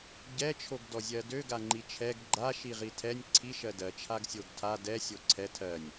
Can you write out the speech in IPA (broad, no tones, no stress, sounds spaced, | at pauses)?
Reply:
ɟ ɛ t͡ʃʰ o ɡ d ɔ zʲ ɜ d ø ɡ a ŋ͡ǃ i t͡ʃʰ ɛ ɡ ɡ͡ǃ a ʃ i ʁ i tʰ ɛ nʲ ǀʰ i ʃ ɜ d ɜ t͡ʃʰ a ɡ sʲ o ɡ tʰ a d ɛ sʲ o ǀʰ ɛ tʰ ɜ nʲ